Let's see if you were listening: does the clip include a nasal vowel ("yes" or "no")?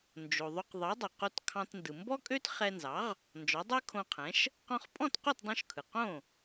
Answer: yes